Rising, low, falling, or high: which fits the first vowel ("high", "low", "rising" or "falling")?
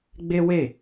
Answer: high